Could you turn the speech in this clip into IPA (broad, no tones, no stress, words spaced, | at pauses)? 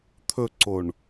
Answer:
t̪ʰɵǀoɳ